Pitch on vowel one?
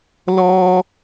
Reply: high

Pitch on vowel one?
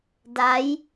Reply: rising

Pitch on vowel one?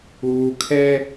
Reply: low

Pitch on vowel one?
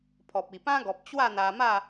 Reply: low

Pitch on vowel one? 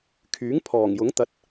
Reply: rising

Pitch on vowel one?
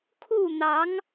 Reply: falling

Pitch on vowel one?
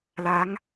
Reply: rising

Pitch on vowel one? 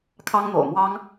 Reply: high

